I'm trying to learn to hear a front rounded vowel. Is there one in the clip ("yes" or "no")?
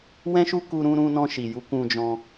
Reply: no